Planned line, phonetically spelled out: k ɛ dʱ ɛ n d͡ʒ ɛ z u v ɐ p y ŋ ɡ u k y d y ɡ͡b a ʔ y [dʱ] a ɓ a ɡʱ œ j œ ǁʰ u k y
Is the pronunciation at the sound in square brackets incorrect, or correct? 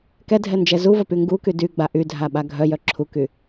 correct